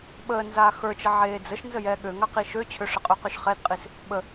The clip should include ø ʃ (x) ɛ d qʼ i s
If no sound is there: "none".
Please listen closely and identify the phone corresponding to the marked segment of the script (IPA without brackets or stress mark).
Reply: χ